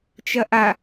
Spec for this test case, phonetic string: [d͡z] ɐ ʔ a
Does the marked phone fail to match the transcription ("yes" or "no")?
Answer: yes